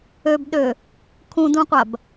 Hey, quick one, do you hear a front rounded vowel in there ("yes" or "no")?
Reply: yes